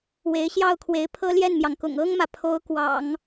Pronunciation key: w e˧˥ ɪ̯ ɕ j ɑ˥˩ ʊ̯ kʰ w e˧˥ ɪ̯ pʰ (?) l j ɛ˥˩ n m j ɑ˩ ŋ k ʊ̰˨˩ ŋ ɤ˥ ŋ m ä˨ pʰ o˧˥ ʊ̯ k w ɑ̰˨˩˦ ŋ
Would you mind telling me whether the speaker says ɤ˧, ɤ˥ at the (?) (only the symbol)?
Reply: ɤ˥